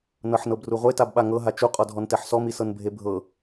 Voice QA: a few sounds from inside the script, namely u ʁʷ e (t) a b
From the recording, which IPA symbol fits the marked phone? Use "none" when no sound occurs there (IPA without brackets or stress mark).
t